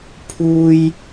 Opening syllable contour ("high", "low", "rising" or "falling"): high